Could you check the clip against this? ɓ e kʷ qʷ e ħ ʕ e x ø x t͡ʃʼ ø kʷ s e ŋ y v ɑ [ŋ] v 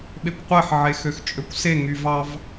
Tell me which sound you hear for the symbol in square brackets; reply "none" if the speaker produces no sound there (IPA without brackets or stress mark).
none